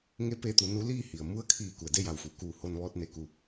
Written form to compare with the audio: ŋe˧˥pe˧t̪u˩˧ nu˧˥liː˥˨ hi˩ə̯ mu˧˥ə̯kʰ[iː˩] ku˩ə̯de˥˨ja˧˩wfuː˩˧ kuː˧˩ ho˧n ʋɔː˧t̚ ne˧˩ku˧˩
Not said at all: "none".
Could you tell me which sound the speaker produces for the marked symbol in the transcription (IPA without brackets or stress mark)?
iː˧˩